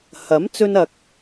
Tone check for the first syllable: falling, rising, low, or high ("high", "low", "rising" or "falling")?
rising